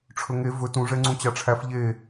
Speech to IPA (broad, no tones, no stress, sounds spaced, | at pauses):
ʈ͡ʂʰ ɵ ŋ e v ɵ t ũ ʐ ɛ ŋ͡ǀ ũ t͡ɕ ɑ ʈ͡ʂʰ æ f ʎ e